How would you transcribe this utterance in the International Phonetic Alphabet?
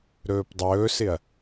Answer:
ɾɵːpdˤɵːsɪɐ̯

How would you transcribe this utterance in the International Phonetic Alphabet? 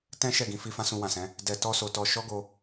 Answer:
tɛ̃˦ ʃɛ˦˨ɡĩ˧fi˧ fã˦sũ˧wã˨sɛ̃˨˦ | dɛ˧tɔ˦so˧tɔ˧ ʃɔ˦ɡo˧

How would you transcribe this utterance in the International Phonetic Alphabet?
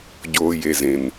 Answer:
ɟoː˧ je˧ zẽ˨n

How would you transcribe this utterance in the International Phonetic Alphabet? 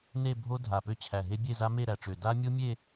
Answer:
ne˥˧bʱo˦˥ dʱa˧˩pø˥˧t͡ɕʰæ˧˩ɦe˦˥ bʲe˥˧za˦˥me˥˧ ɾæ˧˩ʈ͡ʂø˧˩ da˦˥ mʲo˦˥mʲe˥˧

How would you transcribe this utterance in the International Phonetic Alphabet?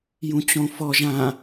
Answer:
jũt͡ɕõfɔʒ ã

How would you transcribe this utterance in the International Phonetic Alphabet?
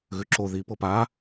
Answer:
ɣʉǁo ði pɤpa

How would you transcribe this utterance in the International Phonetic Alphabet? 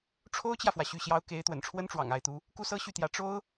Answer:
ʈ͡ʂʰo˥ʊ̯t͡ɕjä˨fwä˩ ɕy˥˩ɕjɑ˥ʊ̯ ke˧˥ɪ̯ t̪wə̰˨˩nʈ͡ʂʰwə˥nʈ͡ʂwɑ̰˨˩ŋ a˧˥ɪ̯t̪u˧˥ | ku˥sɤ˥ɕy˥˩t̪jä˧˥ ʈ͡ʂo˥ʊ̯

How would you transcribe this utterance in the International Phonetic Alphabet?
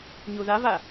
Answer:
ɲuðava

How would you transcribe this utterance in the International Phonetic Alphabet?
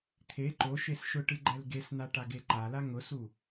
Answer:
t̪ʰe ǃo ʃesʃʊʈɨ ɡ͡ǃɛlɡesn̪a ʈaɡeǃala ŋʊsu

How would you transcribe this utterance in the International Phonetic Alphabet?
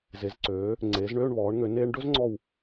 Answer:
ze˩˧zǀøː˩˧ | ŋ͡ǀeː˩˧zɳøː˥˧ɳβɔː˩˧ɳŋø˩˧ neː˧ɳɖɵ˥zŋ͡ǀɔ˧˩w

